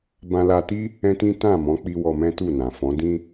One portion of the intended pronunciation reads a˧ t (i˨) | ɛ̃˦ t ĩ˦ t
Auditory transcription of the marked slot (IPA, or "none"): i˦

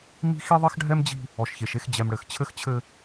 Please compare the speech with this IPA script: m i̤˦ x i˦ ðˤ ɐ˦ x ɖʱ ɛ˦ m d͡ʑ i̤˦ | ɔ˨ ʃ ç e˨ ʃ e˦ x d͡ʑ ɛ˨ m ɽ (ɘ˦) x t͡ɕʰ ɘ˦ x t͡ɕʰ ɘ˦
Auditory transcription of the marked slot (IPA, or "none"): ɘ˨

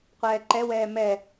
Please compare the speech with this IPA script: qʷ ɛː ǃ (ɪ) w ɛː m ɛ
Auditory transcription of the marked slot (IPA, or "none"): ɛ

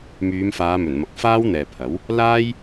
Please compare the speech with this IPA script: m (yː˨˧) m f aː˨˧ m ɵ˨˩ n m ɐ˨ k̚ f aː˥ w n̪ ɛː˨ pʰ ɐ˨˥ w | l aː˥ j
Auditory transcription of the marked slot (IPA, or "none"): yː˨˧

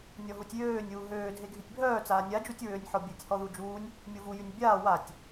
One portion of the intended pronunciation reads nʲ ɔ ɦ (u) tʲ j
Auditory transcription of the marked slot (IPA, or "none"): u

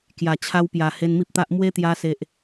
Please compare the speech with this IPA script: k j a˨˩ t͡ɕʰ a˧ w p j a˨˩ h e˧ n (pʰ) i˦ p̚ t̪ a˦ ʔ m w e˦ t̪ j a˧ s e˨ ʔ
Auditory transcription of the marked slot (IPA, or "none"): m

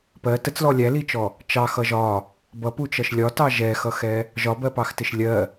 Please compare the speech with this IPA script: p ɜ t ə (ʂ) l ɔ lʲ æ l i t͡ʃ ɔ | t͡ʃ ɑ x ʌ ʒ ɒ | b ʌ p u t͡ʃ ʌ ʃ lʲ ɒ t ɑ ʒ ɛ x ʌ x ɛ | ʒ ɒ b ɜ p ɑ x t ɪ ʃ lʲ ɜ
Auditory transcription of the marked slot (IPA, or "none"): t͡s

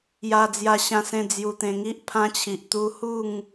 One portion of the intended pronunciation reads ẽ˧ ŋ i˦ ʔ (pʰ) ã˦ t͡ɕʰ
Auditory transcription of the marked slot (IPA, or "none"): pʰ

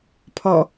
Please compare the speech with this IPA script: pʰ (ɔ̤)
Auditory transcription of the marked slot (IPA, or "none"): ɔ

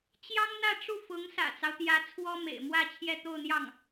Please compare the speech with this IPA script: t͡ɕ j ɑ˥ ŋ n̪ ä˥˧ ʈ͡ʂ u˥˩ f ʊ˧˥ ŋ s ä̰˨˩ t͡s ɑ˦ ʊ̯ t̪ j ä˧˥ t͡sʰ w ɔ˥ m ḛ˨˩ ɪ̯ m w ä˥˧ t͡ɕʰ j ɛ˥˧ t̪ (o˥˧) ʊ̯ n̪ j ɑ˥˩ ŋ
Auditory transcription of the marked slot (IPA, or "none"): o˥˧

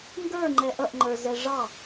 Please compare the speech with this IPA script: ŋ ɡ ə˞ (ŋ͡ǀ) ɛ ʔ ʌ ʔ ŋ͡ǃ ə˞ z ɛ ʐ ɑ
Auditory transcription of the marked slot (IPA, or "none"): ŋ͡ǃ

